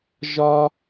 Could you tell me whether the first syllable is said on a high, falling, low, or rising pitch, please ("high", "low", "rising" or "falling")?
high